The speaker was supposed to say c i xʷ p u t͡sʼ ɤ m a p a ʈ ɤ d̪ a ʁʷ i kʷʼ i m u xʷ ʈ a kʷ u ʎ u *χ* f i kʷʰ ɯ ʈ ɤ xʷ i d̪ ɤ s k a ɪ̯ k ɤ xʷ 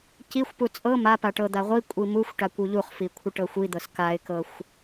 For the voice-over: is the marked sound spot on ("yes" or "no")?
yes